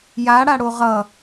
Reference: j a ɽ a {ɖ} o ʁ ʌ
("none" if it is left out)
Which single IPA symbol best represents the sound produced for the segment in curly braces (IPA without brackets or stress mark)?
ɽ